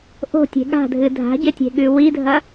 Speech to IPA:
ʔ o̤ tʲ e̤ ɠ a̤ dʱ ɨ dʱ a̤ ɟ e tʲ e̤ ɠ ʉ w i dʱ ɐ

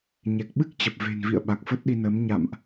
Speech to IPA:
ɲ ɛ˨˩ k̚ ɓ ɨ˦˥ k̚ t͡ɕ ə˨˩ p̚ v e̤˨˩ n v ḭ˧˨ ə̯ ɓ a˨˩ k̚ f ə˦˥ t̚ ɗ i˧ n əː˨˦ m ɲ a̰˧˨ m ʔ

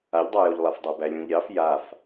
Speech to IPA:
a ʎ dˤ a j o ʎ lˠ a f dˤ æ b æ lʲ ũ ʎ ɾʲ ɑ f j a f

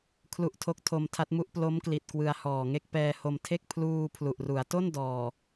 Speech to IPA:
kʰ l u˦˥ ʔ tʰ o˦˥ k̚ tʰ o˧ m tʰ a˦˥ t̚ m u˦˥ ʔ p l o˦˥ m k l i˨˩ t̚ k w ɯ˧ a̯ h ɔː˨˩ ŋ e˥˩ k̚ p ɛː˧ h o˧ m tʰ e˥˩ k̚ pʰ l uː˧ pʰ l u˨˩ ʔ r u˩˦ a̯ t o˥˩ n d ɔː˨˩

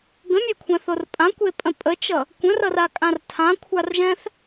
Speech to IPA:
ɡ ə̃ mʲ ɛ kʷʰ ɛ̃ θ o r pʼ ã kʷ e pʼ ə̃ pʼ ə t͡ʃ ʌ | kʷ ə̃ r ʌ r a kʼ ã r tʰ ã kʷʰ a r ʒ ɛ̃ θ

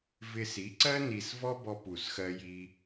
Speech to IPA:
v ɪ˧ s i˨˥ ǀ ɜ˥ n i˧ s v ɔ˥ b ɔ˧ p u˨˩ s x ɜ˧ j i˧

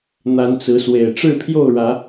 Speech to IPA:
n̪ a˨˦ n t͡s ɹ̩˨˦ s w e˨˩ ɪ̯ ʈ͡ʂ ɻ̩˥˨ pʰ j o˥˨ ʊ̯ ɻ ä˨˦

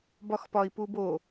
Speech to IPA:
b ɒ x p ɒ i̯ p u b o

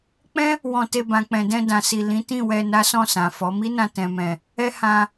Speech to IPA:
k͡p ɛ̃˦ | w ɔ̃˧ t e˧ b ã˨ k͡p ɛ̃˨ d ɛ̃˧ d ã˨ s i˨ l ĩ˨˦ t ĩ˦˨ w ɛ˧ n a˦ s ɔ̃˦˨ s ã˨ f ɔ˨˦ m i˦ n ã˧ t ɛ̃˨ m ɛ̃˨ | ɛ˦ h ã˧

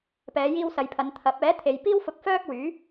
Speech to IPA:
p ɛː˨˧ j iː˧ w s ɐ˨ j pʰ ɐ˨˧ n t̪ʰ ɐ˨˥ p̚ ɛː˨˥ t̪ʰ e˨ j p iː˥ w f ʊ˧ k̚ f œː˥ k̚ w yː˨˥

